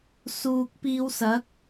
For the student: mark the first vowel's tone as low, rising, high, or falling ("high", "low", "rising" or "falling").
low